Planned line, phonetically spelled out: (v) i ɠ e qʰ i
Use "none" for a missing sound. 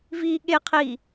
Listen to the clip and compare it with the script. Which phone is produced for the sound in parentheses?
v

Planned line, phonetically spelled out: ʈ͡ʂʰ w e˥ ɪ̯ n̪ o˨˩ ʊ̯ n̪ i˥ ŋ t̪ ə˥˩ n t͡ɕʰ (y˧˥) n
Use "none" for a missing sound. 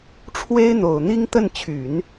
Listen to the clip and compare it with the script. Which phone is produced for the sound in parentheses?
y˨˩˦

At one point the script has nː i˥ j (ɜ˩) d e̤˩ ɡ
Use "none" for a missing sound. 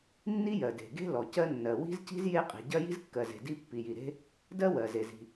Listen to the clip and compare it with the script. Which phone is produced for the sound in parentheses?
ɜ˩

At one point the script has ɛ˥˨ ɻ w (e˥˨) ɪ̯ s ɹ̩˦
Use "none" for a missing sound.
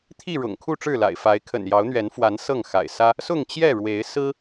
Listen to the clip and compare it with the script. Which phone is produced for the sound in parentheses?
e˨˦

